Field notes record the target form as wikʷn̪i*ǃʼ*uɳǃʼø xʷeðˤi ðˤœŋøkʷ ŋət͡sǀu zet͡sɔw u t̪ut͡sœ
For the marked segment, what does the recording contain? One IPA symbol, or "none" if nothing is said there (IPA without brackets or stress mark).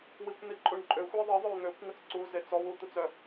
ǃʼ